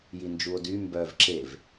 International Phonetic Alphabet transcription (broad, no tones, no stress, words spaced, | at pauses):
jind͡ʒuo̯dy mbœv ǁev